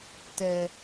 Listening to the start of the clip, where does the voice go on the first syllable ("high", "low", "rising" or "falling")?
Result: high